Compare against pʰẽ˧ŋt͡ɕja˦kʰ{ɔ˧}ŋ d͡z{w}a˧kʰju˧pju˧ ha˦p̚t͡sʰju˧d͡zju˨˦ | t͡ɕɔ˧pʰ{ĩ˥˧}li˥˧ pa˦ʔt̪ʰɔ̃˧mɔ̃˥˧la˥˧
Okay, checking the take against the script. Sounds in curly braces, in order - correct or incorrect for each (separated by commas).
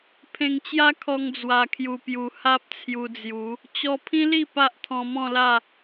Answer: correct, correct, incorrect